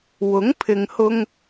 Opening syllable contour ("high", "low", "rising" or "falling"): rising